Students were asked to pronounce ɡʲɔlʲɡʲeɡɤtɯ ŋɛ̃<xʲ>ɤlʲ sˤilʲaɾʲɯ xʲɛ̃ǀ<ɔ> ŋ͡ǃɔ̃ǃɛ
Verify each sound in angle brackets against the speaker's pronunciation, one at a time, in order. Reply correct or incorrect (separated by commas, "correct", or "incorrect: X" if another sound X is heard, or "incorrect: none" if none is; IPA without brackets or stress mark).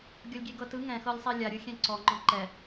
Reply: incorrect: x, correct